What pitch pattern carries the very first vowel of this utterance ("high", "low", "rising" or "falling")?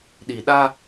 low